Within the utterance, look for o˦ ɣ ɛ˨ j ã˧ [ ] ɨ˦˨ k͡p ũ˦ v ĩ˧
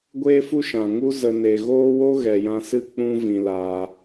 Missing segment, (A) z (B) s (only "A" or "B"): B